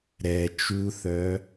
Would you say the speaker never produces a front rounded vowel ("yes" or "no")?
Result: no